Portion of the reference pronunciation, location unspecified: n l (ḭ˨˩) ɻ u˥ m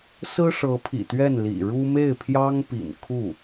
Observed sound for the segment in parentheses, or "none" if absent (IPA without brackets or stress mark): ḭ˨˩